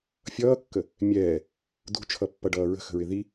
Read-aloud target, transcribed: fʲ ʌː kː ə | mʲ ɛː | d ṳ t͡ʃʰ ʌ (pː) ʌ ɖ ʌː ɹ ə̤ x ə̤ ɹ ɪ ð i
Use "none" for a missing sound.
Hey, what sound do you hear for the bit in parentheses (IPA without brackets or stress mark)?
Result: pː